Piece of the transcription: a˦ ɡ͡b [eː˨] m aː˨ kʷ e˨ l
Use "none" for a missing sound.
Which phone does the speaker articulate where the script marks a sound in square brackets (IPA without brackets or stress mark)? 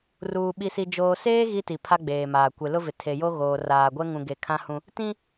eː˨